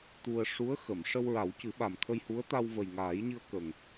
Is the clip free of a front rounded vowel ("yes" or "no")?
yes